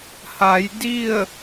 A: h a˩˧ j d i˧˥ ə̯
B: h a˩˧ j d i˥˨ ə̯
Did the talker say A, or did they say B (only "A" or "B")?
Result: B